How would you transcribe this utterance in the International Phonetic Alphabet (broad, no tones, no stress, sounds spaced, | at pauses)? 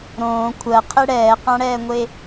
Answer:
ɾ õː kʷʰ ɜ qʰ e ɽ ɛː q ã ɽ ɛː ŋʷ e